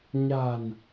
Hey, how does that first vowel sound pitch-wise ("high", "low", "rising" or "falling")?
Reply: low